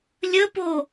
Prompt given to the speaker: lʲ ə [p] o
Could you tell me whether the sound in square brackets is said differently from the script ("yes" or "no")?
no